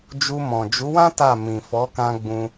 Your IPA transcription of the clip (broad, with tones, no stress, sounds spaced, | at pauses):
d͡ʒ u˧ m ɔ̃˨ d͡ʒ u˨˦ w ã˦ t a˦˨ m ĩ˨ f ɔ˨˦ k ã˧ ɡ͡b ũ˧